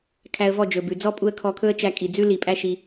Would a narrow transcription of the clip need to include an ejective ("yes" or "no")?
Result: yes